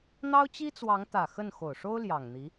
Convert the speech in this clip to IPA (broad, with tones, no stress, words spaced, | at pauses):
n̪ɑ˥ʊ̯t͡ɕi˥t͡swɑ˧˥ŋt̪ä˨˩ xə˥˩n xo˨˩ʊ̯ʂo˥ʊ̯ ljɑ˨˩ŋn̪i˧˥